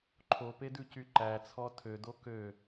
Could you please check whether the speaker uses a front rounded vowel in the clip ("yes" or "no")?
yes